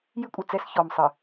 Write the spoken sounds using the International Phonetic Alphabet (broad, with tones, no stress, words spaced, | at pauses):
jɨ˦kʷʼɨ˨t͡sɛ˦s çɔ˨msˤɨ˨